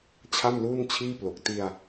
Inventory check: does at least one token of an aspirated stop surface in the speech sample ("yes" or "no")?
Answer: yes